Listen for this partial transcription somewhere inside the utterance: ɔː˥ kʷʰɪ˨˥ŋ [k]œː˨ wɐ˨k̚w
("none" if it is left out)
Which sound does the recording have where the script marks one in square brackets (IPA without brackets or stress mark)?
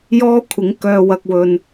k